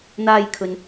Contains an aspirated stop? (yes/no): yes